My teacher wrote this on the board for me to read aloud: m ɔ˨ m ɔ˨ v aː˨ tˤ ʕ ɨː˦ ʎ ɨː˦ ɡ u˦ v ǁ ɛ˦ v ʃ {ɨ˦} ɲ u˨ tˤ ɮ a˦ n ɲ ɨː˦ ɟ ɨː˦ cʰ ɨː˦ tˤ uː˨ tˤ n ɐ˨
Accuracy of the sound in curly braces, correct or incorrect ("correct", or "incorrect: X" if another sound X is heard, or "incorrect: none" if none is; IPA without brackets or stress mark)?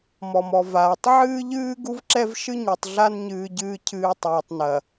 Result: correct